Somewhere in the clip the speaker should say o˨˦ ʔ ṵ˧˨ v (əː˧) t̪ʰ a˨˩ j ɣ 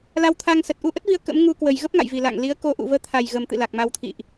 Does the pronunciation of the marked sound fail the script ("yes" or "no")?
no